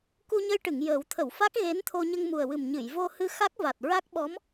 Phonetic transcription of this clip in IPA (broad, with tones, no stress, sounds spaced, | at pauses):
k u˧ ɲ ə˧ j ʈ ɨ˨˩˨ ŋ j əː˨˩˦ w t̪ʰ ə˨˩˨ w f a˦˥ k̚ ɣ e˧˥ n t̪ʰ o˧ ɲ ə˧ ŋ m u˨˩ ə̯ w ɨ˨˩ m ɲ ɨ˨˩˨ j v o˧ h ɨ˧ x a˦˥ k̚ v a˨˩ t̚ ɹ a˦˥ k̚ ɓ ɔ˧˥ m